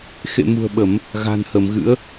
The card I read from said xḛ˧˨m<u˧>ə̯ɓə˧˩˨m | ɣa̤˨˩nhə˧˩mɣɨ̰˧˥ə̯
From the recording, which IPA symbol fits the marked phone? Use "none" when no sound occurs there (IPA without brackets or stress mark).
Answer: ṳ˨˩